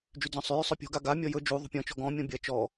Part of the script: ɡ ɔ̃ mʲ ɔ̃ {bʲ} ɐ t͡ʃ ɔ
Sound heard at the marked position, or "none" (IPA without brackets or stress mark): bʲ